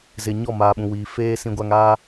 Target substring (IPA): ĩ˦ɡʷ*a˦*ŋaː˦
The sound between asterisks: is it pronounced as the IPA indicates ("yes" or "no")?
yes